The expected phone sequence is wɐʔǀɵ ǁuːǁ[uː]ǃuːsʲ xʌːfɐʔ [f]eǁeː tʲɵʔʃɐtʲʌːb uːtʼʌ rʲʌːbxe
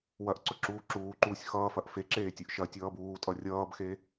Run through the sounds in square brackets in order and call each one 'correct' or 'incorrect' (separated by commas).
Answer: correct, correct